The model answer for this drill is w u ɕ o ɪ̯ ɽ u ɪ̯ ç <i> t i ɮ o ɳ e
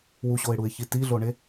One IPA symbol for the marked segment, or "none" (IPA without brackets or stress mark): i